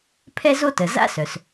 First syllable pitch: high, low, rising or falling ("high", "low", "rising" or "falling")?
high